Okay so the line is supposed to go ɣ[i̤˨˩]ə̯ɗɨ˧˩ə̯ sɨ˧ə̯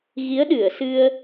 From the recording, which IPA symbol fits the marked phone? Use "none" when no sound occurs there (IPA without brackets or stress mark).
i˨˦